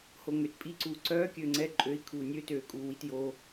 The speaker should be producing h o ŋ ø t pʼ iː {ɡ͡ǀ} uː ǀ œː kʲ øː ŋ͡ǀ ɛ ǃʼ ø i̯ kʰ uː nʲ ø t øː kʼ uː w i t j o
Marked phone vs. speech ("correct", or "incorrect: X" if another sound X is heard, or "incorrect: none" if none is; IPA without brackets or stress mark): incorrect: ǀ